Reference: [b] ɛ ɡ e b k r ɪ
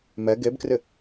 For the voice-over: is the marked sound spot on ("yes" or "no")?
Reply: no